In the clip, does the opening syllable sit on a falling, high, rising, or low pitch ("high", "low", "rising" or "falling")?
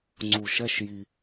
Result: low